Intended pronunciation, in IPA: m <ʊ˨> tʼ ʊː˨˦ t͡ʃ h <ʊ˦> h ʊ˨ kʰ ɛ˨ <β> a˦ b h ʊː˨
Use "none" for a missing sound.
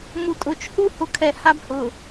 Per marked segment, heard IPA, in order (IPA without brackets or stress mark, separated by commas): u˨, u˦, h